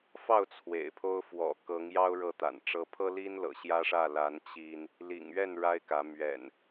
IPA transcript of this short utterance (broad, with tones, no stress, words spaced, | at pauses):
fɑ˥˨ʊ̯ t͡sʰwḛ˨˩ɪ̯pʰo˦ʊ̯ fwɔ̰˨˩kɤ˨˦ŋjɑ˦ʊ̯ ɻɤ˥˨t̪a̰˨˩nʈ͡ʂɤ˦ pʰɤ˦li˦n lɤ̰˨˩ɕjä˦ʂä˥˨ la˨˦n t͡ɕi˦n | lḭ˨˩ŋɥɛ˥˨n ɻa˦ɪ̯kä˨˦ mɥɛ̰˨˩n